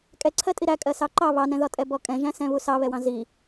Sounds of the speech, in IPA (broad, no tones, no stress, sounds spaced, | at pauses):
kʼ ɛ ǀʰ ɜ tʼ i ɾ æ kʼ ɜ s ɑ ǃ ɑ β ɑ n ɛ̃ ð ɒ tʼ ɛ b ɔ kʼ ɛ̃ ʒ æ̃ s ɛ̃ β u s ɑ β ɛ w ɑ̃ z i